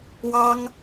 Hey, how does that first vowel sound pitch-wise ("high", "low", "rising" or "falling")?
high